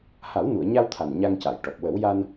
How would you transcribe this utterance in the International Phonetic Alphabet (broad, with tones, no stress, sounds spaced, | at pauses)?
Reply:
h a˨˩˦ w n u˨˩˨ ə̯ ɲ a˧ w t̪ʰ a˨˩ n ɲ a˧ ŋ c a˨˩˨ j ʈ ɔ˨˩ p̚ w ə˨˩˦ w j a˧ n